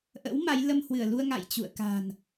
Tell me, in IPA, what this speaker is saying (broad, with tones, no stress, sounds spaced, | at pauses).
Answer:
ʔ ə̰˧˥ w m a˨˦ j l ə˧ m h w ɨ˧˩ ə̯ l u˧ ə̯ ŋ a̰˧˨ j t͡ɕ ṵ˧˨ ə̯ k a̤˨˩ n